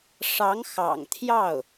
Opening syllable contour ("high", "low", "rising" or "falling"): rising